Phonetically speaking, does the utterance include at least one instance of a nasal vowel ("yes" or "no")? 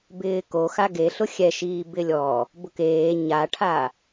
no